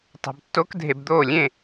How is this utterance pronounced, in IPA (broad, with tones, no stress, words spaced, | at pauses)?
tˤa̤˧btːo˦˥kdʱe˧bd̪oː˥˨ lʲẽ˥˨